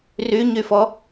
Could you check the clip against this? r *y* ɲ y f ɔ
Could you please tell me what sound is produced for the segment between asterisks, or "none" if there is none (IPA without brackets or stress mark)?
y